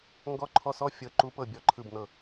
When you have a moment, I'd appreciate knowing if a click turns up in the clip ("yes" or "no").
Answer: yes